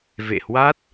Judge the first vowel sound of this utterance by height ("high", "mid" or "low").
mid